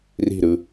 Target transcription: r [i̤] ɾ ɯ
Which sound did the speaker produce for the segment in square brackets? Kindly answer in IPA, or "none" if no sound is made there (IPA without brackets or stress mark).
i̤